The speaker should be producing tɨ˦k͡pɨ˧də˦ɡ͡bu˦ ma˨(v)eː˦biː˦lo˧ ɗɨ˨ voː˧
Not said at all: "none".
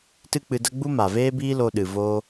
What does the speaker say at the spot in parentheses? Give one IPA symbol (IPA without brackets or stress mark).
v